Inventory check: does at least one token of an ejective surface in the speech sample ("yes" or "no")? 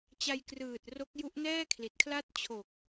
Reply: no